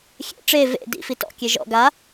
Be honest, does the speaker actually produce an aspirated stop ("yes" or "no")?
no